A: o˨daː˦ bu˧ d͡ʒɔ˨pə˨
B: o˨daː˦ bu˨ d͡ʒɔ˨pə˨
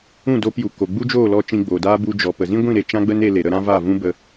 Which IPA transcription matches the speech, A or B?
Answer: A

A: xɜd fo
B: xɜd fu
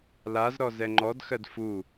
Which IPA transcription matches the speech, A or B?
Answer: B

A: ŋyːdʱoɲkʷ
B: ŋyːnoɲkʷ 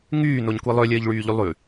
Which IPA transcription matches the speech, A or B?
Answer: B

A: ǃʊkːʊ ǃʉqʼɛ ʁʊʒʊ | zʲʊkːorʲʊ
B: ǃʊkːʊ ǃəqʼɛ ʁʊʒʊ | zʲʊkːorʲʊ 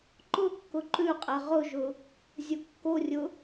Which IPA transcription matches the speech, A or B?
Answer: A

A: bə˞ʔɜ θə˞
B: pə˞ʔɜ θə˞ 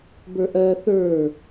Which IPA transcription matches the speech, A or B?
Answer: A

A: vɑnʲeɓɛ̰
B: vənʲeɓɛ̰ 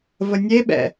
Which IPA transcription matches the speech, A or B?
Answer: B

